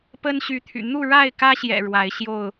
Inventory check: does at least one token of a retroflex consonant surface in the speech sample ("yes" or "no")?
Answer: yes